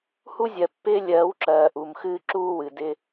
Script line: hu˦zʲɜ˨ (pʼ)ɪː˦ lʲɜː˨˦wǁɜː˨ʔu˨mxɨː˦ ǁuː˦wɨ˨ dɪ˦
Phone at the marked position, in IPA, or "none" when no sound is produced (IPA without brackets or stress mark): pː